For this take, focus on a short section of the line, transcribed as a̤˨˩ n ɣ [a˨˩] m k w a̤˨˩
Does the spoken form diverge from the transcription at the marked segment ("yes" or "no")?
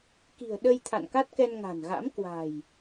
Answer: yes